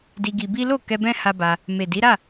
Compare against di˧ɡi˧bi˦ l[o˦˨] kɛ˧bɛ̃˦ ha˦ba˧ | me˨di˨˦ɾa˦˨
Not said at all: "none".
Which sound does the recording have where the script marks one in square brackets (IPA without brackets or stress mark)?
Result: o˦˨